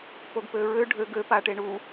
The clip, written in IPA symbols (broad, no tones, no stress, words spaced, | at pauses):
poɡpøɹø ɖʱø ɡø paʈeɳu